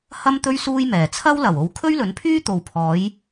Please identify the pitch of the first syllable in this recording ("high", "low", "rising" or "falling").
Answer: high